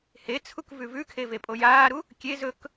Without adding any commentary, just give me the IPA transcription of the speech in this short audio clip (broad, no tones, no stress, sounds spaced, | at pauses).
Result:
h e t͡sʰ u k v ʉ v ʉ kʰ e v e pʼ o j aː ɾ u | kʲ e z ɵ k